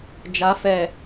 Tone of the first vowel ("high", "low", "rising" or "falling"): rising